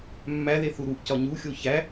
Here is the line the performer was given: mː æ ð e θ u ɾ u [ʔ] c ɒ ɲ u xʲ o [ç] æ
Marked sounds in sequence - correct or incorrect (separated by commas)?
correct, correct